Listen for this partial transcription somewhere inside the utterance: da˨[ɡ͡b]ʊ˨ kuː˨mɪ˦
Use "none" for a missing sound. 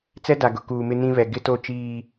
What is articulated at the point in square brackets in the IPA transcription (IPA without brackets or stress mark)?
ɡ